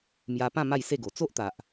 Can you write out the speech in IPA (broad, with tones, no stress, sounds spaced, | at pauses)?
m j a˧ p ã˥˧ m a˥˧ j s e˥˧ ɡ o˨˩ t͡s o˦ ʔ t̪ a˨ ʔ